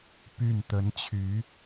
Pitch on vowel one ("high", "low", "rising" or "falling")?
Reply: falling